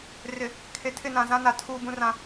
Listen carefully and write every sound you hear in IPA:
r ɪ˨ | kʰ e˨ tʰ ɪ˦˨ n ã˨ z ã˦ n a˨ tʰ uː˦ b ũ˦ r ã˦

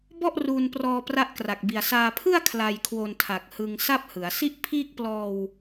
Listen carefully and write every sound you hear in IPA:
b ɔ˥˩ ʔ r uː˧ n p r ɔː˧ p r a˦˥ ʔ k r a˨˩ k̚ b i˨˩ a̯ s aː˧ pʰ ɯ˥˩ a̯ kʰ l a˧ j kʰ w o˧ n tʰ a˨˩ k̚ h ɯ˧ ŋ s a˥˩ p̚ h ɯ˩˦ a̯ s i˥˩ ʔ pʰ iː˥˩ k̚ p l ɔː˧ w

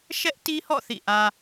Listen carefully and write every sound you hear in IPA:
ʃ ɛ˦ ʔ t i˦ h ɔ̰˦˨ θ ḭ˦˨ ʔ ä˦

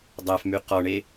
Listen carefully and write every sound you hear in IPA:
dˤ æ f m y q ɔ ɳ e

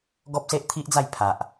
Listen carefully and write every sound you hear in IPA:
ɡ ɔ˦ p̚ s e˦ ʔ t̪ʰ i˦ ʔ d͡z a˥˧ j pʰ a˨ ʔ

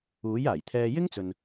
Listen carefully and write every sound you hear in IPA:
uː˨˥ j aː˨˩ j t̪ʰ ɛː˧ j ɪ˥ ŋ t͡s ɵ˨ n

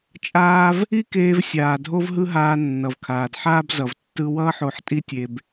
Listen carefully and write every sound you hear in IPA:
t͡ʃʼ aː˧ v | i˥ k eː˧ v sʲ aː˩ dʱ o˥ v ɦ ɯ˥ ɦ aː˧ nː ʌ˩ v kʰ aː˩ d ħ aː˥ b z ʌ˩ v tː ɯ˧ w ʌː˥ ħ o˧ ħ tʼ i˥ tʲ e˧ b

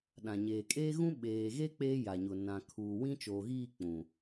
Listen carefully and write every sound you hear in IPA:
ɗ ã˨ ɲ eː˨ kʼ eː˦ ɣ ũ˦ ɓ eː˨ ɣ e˦ k͡p eː˦ j a˨ ɲ ʊ˨ n ã˨ kʰ uː˨ w ĩ˦ t͡ʃ oː˨ ɣ iː˦˨ k͡p ũ˨

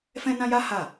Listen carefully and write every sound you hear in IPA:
f ɛ̃˦ n ã˦ j a˦ h a˦˨

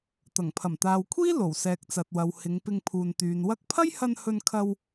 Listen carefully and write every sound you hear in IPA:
t̪ ɐ˨˩ ŋ pʰ ɐ˨˩ m t̪ aː˨ w kʷʰ iː˥ l o˨˩ w s ɛː˨ k̚ t͡s ɐ˨ t̚ w ɐ˨ w h ɪ˨˧ ŋ p ɪ˧ ŋ pʰ uː˨ n t̪ yː˨ n w ɐ˧ k̚ pʰ ɐ˥ j h ɐ˧ n h ɵ˧ n kʰ ɐ˧ w

